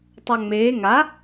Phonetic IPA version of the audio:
tˤaŋ͡meː ŋa

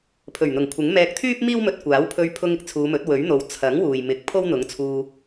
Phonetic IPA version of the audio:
pʰɵ˨˩ɥn̪ʊ˨˩ŋkʷʰɪ˨˥ŋ mɛː˧k̚ t̪ʰyː˥p̚miː˥wmɵ˧t̚ kʷaː˨˥wpʰɵ˧ɥ pʰʊ˧ŋ ɪ˧k̚t͡sʰuː˨˧mɵ˨˥t̚ wɵ˨˥ɥn̪o˨w t͡sʰɐ˨˥ŋ wuː˨jmɪ˨˥k̚ pʰo˥wn̪ʊ˨˥ŋt͡sʰuː˧

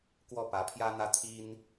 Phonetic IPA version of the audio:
kwɔ˥˩ pä˧˥pʰjä˥n̪ä˥ t̪ʰi˥n

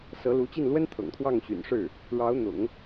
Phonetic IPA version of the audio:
sɤ˧˥lu˧˥t͡ɕi˥˩n lwə˥n t̪ʰɤ̰˨˩ŋt̪ʰwɑ˥˩ŋ ɕy̰˨˩nʂɻ̩˥˩ | ɻɑ˧˥ʊ̯n̪ʊ̰˨˩˦ŋ

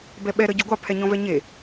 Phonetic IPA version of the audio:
bɛɓɛ ɾəːɟoɡʷɑ pʰɛɲɔ̃vɛɲe

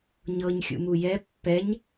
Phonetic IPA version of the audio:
ɲɤɲxʲṵmu jɛ pːɛɲ

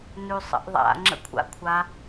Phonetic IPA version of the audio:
nʉsˤə̰ʔðˤa̰ ŋ͡ǁə̰kʷʰa̰kʷʰa

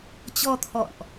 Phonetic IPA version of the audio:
t͡ɕɔ˧t̪ʰɔ̰˧˨nʔ

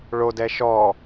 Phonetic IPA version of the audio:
ɭodɛ ʃɔ

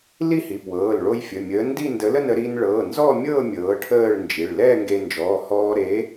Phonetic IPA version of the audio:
li˥˧hi˩˧˩pwɤː˩˧˩l ɭo˧j fʲə˩˧˩mʲəː˨˥ndi˥˧ ndə˨˥lə˥˧nə˥˧ ɾi˧nɭɤ˩˧˩ nzɔ˥˧mʲɤ˥˧ mʲɤː˨˥ʈʰəː˥˧ɭnd͡ʒi˩˧˩ɭ lɛː˥˧ŋɡe˧nd͡ʒɔː˩˧˩ hɔː˧ɾe˨˥

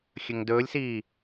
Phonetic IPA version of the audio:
xʲɵŋdɵːlʲsiː

